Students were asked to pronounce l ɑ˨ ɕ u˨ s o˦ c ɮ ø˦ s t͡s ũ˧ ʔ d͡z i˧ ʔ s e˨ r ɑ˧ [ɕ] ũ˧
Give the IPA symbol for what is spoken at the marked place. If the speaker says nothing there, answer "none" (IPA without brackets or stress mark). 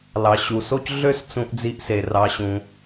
ɕ